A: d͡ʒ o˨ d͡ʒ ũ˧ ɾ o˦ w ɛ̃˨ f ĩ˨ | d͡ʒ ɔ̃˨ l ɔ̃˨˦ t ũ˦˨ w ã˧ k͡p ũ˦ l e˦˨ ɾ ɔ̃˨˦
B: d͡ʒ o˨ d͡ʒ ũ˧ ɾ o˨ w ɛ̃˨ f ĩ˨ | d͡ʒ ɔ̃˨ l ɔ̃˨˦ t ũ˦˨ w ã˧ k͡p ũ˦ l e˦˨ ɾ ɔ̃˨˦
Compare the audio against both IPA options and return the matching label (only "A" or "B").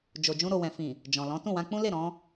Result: B